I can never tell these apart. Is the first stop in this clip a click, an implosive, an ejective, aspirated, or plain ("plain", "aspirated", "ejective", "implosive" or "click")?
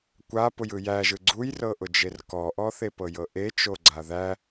plain